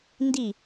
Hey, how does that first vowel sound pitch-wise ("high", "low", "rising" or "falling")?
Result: falling